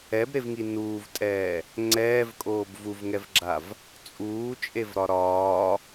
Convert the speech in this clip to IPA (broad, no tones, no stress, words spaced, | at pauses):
ɛbɾevŋi nuːvtʼɛː | ŋ͡ǀɛːvkʼoːb vuvŋɛvɡ͡ǁav | t͡sʼuːt͡ʃʼevɾɒ ɾɒː